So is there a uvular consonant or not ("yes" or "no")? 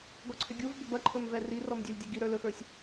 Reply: no